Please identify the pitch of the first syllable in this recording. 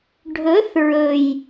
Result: rising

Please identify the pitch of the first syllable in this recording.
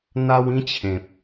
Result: high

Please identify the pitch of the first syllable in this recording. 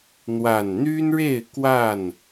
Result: low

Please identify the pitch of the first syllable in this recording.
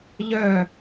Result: falling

